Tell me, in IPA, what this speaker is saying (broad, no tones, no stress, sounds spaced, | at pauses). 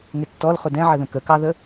ŋ ɪ tː ɔ l χ ʊ d ɛ̃ ʕ ə ð ə̃ k ə k ɑ ð ə